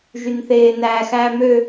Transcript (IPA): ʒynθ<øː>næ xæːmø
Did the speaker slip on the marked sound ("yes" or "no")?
yes